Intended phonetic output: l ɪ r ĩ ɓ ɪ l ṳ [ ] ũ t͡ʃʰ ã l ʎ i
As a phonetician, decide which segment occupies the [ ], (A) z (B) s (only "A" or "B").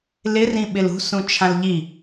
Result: B